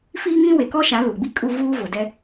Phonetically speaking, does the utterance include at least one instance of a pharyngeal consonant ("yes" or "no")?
no